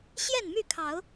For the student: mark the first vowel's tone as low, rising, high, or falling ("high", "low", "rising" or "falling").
falling